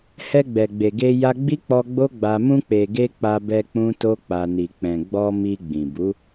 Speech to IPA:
h ɛ˧ ɡ͡b ɛ˨ ɡ͡b e˨ ɡ e˧ j a˧ ɡ͡b i˦ k͡p ɔ˧ ɡ͡b o˦ ɡ͡b a˧ m ũ˧ k͡p e˨ ɡ e˧ k͡p a˧ b ɛ˧ k͡p ũ˦ t o˦ k͡p a˧ n i˨ k͡p ɛ̃˨ ɡ͡b ɔ˧ m i˧ ɡ͡b ĩ˨ b u˨˦

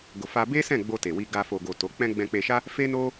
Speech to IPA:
ɡ o˨ f a˧ b e˦ s ɛ̃˦˨ ɡ͡b o˧ t e˨ w i˧ ɡ a˧ f o˨ ɡ o˨ t o˨˦ k͡p ɛ̃˦ ɡ͡b ɛ̃˧ k͡p e˧ ʃ a˦ | f e˦ n o˦

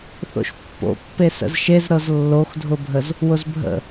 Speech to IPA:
θ o̰ ʃ pː o̰ pː e s ə̰ z ʃ e z ɾ ɤ z lː o x dʱ ʊ bʱ ə z | w ʊ z bʱ ə̰

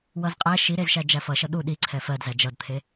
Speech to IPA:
w ʌ z qʼ æ ʃ i ɾ e z ʃ æ d͡ʒ æ f ʌ ʃ ʌ ɗ u ɗ i ǀʰ ɛ f ɜ d z æ d͡ʒ ʌ d t̪ʰ e

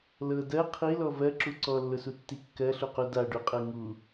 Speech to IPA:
l ɤ d ɜ qʰ i l ɔ v ɜ ǁ u ǀ ɔ lː ʊ s u tː i kː ɜ ɬ u q u d a ɖ u qʼ ɤ ŋ u

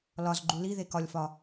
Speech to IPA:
l ɒ z ɡ͡ǃ u l i ð e k ɒ lʲ f ɒ

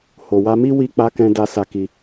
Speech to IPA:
h o˨ w a˧ m i˦ w i˧ k͡p a˧ k ɛ̃˧ d a˧ s a˧ k i˧

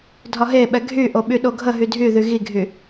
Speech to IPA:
dʱ ɒ ɦ e ɓ ɛ ɡʱ y ʔ o ɓ y ɗ o ɡʱ ə ɦ y dʱ y ð y ɣ i ɡʱ y

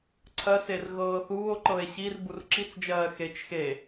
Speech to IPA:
ǀʰ ɜ s e r ɣ ɤː θ uː o̯ ǃ ɤ e̯ ɕ i r b u r ǁ i t͡s d͡ʒ ɜː x e t͡ʃ x e

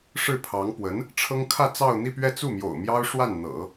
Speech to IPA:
ʂ ɻ̩˥˩ pʰ ɑ˧˥ ŋ p w ə˧˥ n | ʈ͡ʂʰ ɤ˥ ŋ kʰ ä˥˧ t͡s ɑ˥˧ ʊ̯ n̪ i˥˧ p ɥ ɛ˥˧ t͡s u˥˩ m j o̰˨˩ ʊ̯ m j ɑ˥ ʊ̯ ʂ w a˥˩ n n̪ ɤ̰˨˩˦

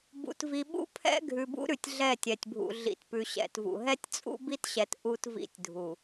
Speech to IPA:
b ṵ˨ t v i˨ ɓ ṵ˦ pʰ ɛ̰˦ ɡʱ ʉ˨ b ṵ˦ ɾ ʉ˨ tʲ ɮ ɛ˦˨ tʲ ɛ˨ tʲ bʱ ṵ˨ ɮ ḭ˨ t p ʉ˨ ɕ ɛ̰˨ t v ṵ˨ ɦ ɛ˦ tʲ t͡sʼ ṵ˦ b i˦ t ɕ ɛ˨ t ʔ u˦ t v ḭ˦ tʲ dʱ u˨

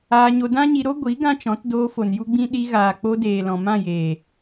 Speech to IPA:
aː˧ ɲ o˧ d ã˦ ɲ i˧ ɾ o˦ ɡʷ i˨˦ ɡ ã˦ t͡ʃ ɔ̃˨˦ t d oː˧ f o˨ n j u˦ ɡ͡b ĩ˦ ɗ i˧ ɣ aː˨ k͡p o˧ d eː˨ l ɔ̃˨ m ã˦˨ j eː˨

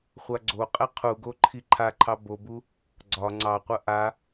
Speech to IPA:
χʷ a ɡ͡ǀ o qʼ ɛ qʰ u ɡ o ǃʰ i ǃʰ a ǃʰ ɑ b o b u | ɡ͡ǀ ɒ ŋ͡ǀ ɑ qʷ ɐ ʔ a

